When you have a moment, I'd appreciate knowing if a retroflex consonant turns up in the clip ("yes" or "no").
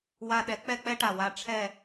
yes